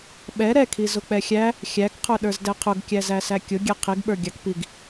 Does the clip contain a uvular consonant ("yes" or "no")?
yes